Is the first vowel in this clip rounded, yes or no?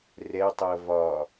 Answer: no